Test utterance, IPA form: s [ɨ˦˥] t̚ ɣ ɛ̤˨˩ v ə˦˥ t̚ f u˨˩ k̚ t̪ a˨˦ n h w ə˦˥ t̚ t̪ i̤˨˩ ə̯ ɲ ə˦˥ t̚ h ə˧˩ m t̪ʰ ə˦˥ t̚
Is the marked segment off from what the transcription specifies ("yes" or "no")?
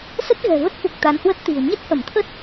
yes